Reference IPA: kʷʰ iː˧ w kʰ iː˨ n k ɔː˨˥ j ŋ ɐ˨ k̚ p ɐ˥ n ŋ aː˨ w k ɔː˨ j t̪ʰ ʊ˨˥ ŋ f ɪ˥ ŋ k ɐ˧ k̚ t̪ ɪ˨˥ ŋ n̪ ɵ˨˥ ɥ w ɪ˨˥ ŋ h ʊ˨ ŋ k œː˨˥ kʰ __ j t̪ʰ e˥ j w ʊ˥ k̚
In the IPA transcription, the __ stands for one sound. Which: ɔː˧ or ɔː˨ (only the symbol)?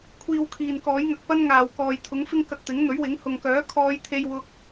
ɔː˧